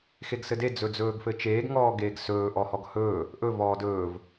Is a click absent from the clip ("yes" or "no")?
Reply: yes